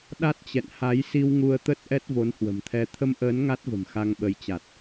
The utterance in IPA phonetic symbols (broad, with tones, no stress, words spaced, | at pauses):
ɗa˦˥t̚t͡ɕɛ̰˧˨n ha˨˦jsi˧w ŋu˧ə̯t̪ə˦˥t̚ ʔɛ˦˥t̚vo˨˦nhwə̤˨˩mt̪ʰɛ˧ t̪ʰə˧mʔəː˨˦n ŋa˦˥t̚və̤˨˩m xa˧ŋɓə˨˦jt͡ɕa˨˩t̚